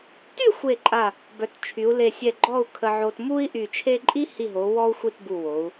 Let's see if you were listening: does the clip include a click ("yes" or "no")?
yes